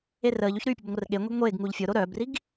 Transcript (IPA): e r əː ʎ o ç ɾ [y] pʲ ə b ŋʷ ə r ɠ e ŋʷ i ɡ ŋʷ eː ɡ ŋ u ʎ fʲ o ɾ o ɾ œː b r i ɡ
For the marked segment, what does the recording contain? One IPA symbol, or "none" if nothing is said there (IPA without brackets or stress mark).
y